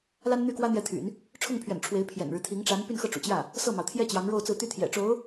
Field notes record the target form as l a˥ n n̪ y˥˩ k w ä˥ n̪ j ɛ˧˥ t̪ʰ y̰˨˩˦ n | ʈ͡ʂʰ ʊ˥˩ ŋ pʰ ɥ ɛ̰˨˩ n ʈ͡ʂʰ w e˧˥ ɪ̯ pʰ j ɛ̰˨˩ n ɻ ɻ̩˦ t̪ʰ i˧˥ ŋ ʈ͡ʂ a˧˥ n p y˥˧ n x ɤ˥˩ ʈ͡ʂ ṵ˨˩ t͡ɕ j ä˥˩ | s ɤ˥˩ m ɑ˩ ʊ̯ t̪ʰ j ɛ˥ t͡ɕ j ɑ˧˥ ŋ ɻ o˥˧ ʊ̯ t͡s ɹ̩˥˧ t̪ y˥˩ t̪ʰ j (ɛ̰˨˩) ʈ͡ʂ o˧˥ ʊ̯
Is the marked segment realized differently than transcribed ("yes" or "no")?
no